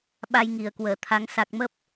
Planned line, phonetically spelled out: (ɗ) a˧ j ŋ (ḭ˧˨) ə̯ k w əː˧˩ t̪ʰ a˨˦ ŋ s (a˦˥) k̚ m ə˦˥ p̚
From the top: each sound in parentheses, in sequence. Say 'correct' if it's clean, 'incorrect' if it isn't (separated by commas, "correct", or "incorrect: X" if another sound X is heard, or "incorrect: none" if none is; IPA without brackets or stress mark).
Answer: incorrect: ɓ, incorrect: i˧˩, incorrect: a˨˩